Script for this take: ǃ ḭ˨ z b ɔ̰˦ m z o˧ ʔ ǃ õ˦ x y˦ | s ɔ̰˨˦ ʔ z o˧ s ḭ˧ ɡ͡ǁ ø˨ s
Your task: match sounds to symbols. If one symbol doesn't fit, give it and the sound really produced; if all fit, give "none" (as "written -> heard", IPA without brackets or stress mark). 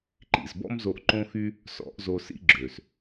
none